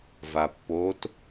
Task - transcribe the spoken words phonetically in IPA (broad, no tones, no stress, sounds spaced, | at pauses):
v a pː o t